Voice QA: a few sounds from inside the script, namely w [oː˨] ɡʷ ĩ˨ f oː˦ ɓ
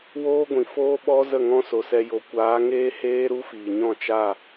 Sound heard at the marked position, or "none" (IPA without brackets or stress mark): oː˦